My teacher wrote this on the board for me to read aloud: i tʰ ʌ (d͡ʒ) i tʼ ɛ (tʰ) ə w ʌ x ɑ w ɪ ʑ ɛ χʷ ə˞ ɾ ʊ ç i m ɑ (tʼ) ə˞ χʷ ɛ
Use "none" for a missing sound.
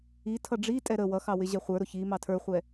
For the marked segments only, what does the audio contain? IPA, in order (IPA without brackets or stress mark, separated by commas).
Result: ɖ͡ʐ, ɾ, tʰ